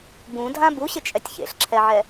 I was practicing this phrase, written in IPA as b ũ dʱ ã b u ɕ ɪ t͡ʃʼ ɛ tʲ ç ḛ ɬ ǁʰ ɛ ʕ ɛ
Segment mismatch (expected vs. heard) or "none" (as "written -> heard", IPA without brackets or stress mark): none